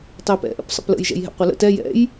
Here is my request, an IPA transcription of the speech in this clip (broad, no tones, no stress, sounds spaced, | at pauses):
tˤ e p ɛ̰ ʔ ə̰ p sˤ ə̰ p l ə̰ j ʒ ɛ̰ j ɦ ɛ̰ qʷ e l ə̰ t ɛ j ɛ̰ j